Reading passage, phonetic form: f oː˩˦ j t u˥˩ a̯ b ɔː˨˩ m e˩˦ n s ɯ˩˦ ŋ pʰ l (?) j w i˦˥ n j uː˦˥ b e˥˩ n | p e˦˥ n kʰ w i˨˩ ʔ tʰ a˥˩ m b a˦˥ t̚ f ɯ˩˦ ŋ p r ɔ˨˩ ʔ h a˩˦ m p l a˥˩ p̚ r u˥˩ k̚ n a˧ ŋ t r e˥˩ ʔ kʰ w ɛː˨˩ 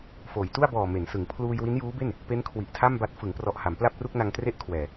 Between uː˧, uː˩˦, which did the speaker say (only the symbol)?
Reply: uː˧